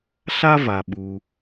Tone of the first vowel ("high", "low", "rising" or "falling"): high